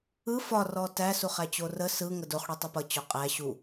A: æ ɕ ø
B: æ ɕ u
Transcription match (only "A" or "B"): B